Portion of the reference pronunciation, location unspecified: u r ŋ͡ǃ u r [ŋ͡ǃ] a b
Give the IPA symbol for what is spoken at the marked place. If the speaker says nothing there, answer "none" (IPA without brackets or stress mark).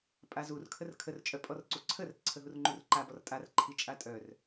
ǃ